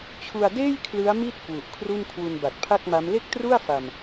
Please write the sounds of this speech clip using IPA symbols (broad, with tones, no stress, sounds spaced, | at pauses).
t͡ɕʰ u˧ a̯ d eː˥˩ j kʰ l ɯ˦˥ a̯ m i˥˩ t̚ k w u˨˩ ʔ kʰ r u˥˩ n kʰ w u˧ n b a˨˩ t̚ pʰ a˥˩ k̚ m a˦˥ m l e˥˩ k̚ t r u˥˩ a̯ f a˧ m